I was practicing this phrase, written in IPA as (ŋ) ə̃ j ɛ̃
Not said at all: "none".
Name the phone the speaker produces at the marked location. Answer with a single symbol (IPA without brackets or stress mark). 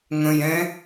ŋ